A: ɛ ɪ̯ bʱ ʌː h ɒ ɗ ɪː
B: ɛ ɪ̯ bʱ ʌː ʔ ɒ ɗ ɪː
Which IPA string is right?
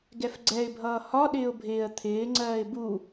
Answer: A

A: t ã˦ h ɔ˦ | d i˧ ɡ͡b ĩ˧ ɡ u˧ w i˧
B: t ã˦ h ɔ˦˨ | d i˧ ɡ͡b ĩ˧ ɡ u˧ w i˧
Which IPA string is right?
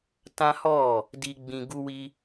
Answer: B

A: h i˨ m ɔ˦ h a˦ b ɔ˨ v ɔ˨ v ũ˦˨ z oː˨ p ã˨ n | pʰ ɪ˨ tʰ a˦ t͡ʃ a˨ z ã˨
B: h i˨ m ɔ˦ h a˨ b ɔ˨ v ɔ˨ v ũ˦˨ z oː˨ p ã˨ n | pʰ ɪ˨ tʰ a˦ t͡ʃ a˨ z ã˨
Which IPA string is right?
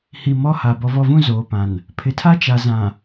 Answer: B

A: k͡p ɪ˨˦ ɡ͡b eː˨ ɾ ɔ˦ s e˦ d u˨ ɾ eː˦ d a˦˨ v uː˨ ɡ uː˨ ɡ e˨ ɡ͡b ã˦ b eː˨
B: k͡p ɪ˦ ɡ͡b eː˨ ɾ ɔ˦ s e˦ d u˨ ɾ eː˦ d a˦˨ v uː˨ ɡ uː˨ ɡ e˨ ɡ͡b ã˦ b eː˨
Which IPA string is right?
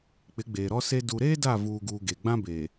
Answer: A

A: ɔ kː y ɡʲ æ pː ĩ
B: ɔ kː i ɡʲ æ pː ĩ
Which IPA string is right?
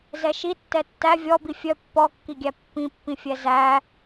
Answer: B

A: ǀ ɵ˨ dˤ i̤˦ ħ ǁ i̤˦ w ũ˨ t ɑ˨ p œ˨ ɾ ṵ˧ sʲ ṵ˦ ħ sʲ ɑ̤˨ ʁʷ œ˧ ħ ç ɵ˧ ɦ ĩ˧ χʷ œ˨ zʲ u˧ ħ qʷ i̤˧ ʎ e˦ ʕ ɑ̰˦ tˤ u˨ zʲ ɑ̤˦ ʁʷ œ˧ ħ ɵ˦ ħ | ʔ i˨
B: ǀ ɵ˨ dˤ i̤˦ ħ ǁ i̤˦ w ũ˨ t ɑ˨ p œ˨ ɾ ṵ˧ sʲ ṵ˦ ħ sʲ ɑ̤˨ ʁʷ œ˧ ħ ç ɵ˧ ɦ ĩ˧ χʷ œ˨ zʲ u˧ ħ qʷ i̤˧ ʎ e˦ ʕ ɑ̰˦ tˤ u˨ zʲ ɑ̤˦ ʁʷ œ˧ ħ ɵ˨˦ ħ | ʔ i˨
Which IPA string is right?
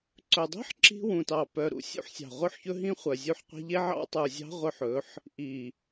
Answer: B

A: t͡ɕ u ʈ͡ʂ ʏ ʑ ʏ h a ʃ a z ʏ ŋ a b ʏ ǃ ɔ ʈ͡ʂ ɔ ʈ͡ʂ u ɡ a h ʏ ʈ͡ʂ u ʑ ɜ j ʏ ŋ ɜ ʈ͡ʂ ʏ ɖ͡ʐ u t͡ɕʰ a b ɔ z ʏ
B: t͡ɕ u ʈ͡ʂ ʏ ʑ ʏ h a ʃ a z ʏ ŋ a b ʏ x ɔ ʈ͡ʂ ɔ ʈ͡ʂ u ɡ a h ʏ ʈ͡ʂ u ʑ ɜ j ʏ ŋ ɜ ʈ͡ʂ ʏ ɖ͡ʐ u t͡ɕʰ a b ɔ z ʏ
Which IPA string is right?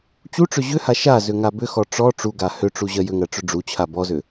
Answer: B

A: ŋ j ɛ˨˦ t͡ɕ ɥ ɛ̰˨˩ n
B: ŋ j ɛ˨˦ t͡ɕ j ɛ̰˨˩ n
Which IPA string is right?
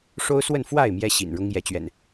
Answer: A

